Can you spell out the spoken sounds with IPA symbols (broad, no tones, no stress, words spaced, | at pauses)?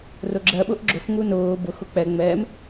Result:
rʊɡ͡ǁɜ ɓʊʔɡ͡ǁʊf ŋunʊː bʊ xʊk͡pɛ ŋ͡mɛm